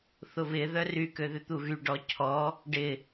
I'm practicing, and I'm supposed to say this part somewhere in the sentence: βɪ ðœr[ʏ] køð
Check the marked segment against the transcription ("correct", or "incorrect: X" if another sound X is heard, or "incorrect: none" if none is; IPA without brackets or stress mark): incorrect: y